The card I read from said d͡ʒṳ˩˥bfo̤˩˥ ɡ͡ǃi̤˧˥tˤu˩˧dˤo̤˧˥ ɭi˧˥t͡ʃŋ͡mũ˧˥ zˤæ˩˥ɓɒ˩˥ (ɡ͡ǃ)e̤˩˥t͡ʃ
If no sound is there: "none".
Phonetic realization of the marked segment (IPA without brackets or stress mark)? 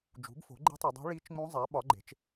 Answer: ɡ͡ǃ